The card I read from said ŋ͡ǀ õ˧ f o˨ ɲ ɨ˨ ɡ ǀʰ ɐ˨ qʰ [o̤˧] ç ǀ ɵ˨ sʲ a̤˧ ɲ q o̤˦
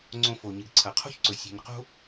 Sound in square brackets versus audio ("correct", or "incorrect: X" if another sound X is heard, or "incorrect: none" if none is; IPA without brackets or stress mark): incorrect: o̤˦